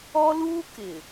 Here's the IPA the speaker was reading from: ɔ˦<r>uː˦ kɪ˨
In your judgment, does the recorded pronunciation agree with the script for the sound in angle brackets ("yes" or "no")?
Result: no